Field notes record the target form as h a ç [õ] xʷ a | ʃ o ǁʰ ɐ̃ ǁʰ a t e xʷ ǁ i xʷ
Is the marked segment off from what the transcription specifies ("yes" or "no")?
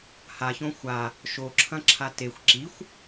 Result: no